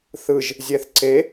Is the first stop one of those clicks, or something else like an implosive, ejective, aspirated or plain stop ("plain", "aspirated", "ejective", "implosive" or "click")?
click